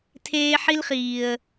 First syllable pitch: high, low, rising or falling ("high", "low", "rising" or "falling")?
high